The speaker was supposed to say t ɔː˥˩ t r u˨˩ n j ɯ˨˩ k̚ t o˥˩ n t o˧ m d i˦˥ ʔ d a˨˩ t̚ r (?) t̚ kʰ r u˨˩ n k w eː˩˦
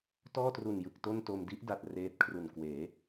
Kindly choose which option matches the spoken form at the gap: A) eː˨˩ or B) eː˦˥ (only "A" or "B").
B